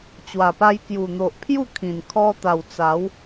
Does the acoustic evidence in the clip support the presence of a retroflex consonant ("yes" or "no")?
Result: no